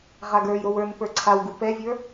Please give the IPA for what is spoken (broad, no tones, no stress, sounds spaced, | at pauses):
ʁ a ɡ ə˞ j ɾ o w ə˞ n p ə˞ ǀʰ a w ɡ u p ɛ vʲ ə˞